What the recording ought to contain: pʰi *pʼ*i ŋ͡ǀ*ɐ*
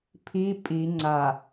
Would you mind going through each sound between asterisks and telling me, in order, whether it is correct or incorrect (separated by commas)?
correct, incorrect